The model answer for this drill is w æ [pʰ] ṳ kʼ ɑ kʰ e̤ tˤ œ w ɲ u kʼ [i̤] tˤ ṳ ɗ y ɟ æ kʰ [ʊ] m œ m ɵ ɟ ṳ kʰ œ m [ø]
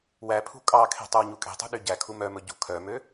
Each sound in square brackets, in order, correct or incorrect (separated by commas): correct, incorrect, incorrect, correct